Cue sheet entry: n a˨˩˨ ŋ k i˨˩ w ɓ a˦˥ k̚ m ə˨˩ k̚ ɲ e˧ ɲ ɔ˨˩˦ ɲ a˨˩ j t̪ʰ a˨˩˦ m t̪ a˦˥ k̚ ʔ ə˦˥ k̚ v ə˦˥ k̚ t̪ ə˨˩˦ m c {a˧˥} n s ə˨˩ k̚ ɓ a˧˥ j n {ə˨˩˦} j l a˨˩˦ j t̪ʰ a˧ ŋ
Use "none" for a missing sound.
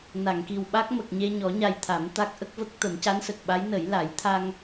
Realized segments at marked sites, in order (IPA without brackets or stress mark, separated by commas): a˧˥, ə˨˩˦